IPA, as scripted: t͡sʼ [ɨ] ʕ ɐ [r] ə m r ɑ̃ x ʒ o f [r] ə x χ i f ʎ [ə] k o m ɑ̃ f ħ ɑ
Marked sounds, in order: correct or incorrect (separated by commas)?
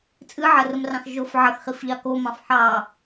correct, correct, incorrect, incorrect